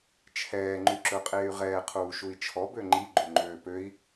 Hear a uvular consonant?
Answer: yes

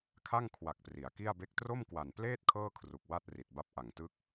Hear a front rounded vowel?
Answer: no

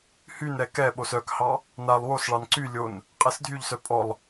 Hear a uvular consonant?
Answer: yes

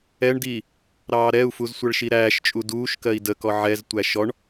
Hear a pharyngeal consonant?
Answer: yes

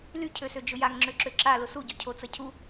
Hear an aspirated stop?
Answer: yes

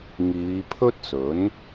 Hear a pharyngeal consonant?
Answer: no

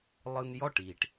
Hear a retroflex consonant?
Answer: yes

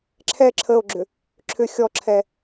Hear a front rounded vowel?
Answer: yes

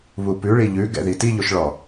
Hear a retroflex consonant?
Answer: yes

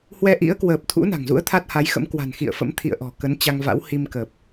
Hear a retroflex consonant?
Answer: no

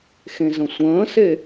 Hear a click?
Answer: no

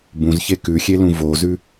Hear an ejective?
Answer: no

